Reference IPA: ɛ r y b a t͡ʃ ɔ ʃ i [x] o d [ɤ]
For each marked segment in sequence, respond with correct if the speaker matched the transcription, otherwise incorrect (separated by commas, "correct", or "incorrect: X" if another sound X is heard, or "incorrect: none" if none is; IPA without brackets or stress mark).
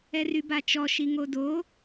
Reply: incorrect: ŋ, incorrect: o